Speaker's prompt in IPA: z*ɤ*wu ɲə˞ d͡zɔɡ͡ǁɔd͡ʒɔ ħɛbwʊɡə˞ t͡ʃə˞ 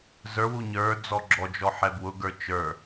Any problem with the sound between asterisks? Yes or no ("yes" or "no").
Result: yes